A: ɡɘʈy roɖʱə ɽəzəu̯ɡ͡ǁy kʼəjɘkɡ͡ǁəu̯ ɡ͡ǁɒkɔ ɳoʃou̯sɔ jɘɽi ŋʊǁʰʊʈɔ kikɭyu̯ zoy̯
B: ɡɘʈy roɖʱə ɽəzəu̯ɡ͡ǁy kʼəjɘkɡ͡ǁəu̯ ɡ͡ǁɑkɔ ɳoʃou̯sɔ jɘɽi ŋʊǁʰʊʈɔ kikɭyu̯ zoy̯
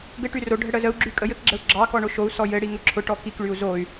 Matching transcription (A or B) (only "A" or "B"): B